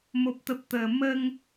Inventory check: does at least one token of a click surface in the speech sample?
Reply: no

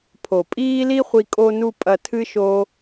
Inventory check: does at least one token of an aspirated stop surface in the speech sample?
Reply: yes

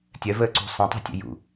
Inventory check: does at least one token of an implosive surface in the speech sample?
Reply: no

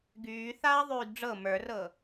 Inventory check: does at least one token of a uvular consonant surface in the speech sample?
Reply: no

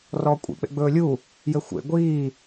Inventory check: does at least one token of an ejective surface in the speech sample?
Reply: yes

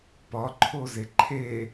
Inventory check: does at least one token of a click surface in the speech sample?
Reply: yes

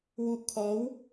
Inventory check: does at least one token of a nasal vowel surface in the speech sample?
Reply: no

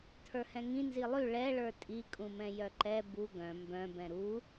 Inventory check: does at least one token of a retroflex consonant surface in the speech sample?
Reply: yes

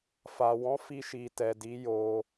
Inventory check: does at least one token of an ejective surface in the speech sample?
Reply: no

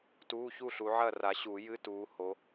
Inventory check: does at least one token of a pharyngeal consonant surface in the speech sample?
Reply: yes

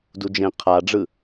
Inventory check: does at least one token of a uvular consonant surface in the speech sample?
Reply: yes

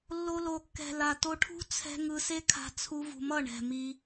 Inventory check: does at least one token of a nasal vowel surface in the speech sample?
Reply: no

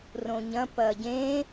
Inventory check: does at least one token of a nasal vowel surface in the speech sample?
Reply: yes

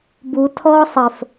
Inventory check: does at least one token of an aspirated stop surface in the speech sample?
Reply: yes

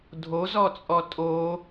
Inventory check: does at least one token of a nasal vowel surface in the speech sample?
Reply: no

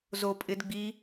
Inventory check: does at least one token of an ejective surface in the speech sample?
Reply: yes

